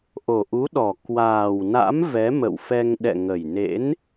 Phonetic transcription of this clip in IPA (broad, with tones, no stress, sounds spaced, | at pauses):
ʔ o˨˩ ʔ u˨˦ ɗ ɔ˨˩ k w aː˨˩ w n a̰˧˥ m v ɛ˨˦ m ə̰˧˨ w f ɛ˧ ŋ ɗ ɛ̰˧˨ ŋ ə˨˩ j n ḛ˧˥ n